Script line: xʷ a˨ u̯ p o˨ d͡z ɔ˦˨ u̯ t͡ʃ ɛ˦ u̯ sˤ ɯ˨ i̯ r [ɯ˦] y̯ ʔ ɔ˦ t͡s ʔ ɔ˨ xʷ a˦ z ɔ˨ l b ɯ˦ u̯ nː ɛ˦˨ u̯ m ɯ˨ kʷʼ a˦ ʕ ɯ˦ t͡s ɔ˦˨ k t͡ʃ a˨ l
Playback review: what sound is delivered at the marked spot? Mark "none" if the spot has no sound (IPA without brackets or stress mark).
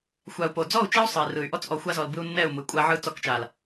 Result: ɯ˨